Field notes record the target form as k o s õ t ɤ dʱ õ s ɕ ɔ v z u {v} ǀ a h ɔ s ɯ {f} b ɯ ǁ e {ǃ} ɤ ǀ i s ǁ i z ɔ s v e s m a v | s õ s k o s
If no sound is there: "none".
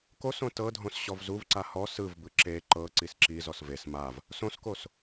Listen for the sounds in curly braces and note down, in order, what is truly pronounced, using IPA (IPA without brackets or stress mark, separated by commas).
v, v, ǃ